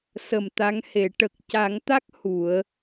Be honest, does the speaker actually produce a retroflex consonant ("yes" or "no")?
yes